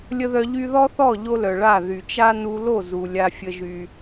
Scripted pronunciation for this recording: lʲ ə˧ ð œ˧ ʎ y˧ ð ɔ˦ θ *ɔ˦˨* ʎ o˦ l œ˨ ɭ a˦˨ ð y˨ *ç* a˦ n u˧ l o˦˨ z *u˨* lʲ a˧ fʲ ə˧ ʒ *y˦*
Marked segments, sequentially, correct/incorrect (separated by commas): correct, incorrect, correct, incorrect